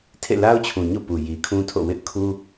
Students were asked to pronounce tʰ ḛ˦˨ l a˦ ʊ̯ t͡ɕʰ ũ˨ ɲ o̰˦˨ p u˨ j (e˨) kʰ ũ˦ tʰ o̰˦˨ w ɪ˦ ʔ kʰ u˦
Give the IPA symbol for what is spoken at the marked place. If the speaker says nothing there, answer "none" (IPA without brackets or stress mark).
i˨